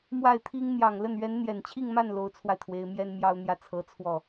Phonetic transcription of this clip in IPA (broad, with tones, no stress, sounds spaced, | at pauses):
m w a˥˩ ɪ̯ t̪ʰ i˥ ŋ n̪ j ɑ˨˩ ŋ l ə˥˩ n ɥ ɛ˧˥ n n̪ j ɛ˨˩ n t͡ɕʰ i˥˧ ŋ m a˥˩ n l o˧˥ ʊ̯ t͡sʰ w a˧ ɪ̯ t̪ʰ w e˧˥ ɪ̯ m j ɛ˥ n m j ɑ˥ ʊ̯ n̪ j ä˥˩ t͡sʰ ɤ˧˥ t͡sʰ w ɔ˥˩